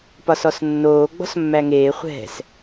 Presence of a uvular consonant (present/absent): present